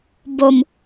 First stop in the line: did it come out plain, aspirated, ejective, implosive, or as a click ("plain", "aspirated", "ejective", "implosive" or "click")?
plain